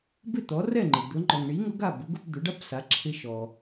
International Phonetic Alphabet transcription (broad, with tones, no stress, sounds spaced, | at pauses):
b ɪ˥˩ t̪ ɔ˩˥ r ɛ˥˩ ŋ͡ǃ ɪ˩ d̪ ʊ˩˥ ŋ͡ǃ ɔ˩ ŋ ɳ i˩˥ ŋ ʊ˩˥ ɡ a˥˩ b ʊ˩˥ ɡ ʊ˧ p d̪ ʊ˩˥ ɖ a˥ p s a˩˥ ǁʰ ɪ˧ ʃ ɔ˩